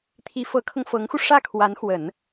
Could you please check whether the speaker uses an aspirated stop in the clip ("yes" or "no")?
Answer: yes